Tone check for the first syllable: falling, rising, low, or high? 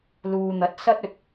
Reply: low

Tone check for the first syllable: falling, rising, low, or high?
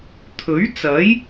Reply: rising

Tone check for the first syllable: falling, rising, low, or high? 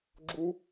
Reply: high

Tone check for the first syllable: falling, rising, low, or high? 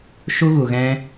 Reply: high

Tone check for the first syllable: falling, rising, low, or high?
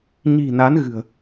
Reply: low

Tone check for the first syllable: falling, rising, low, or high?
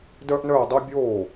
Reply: high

